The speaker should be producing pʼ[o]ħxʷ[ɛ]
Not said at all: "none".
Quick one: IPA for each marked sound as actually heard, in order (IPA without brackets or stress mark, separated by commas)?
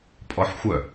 ɔ, œ